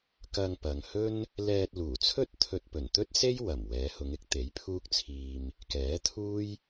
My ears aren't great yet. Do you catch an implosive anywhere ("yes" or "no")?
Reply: no